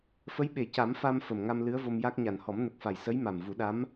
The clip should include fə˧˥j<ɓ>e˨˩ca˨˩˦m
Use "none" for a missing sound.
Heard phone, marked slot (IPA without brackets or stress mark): ɓ